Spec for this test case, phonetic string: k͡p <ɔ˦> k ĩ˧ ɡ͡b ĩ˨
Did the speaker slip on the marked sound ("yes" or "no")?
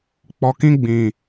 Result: yes